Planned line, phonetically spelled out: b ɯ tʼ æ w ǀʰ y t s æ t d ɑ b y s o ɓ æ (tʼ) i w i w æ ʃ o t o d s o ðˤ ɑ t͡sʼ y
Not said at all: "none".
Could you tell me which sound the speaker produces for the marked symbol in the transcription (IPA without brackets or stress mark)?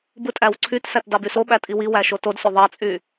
tʼ